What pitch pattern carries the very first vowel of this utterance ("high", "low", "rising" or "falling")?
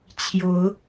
rising